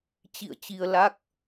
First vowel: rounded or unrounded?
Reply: unrounded